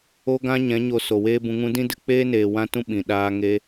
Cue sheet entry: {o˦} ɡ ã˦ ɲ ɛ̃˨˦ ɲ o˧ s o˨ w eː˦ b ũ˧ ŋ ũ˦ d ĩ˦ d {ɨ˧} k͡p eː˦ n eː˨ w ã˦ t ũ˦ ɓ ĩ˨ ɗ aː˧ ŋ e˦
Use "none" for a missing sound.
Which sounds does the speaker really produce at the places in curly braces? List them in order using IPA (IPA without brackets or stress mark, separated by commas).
o˦, ɨ˧